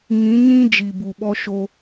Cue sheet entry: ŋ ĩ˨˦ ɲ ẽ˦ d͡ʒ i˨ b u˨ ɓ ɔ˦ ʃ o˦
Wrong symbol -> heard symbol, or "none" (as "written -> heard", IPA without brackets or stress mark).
ẽ˦ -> ĩ˦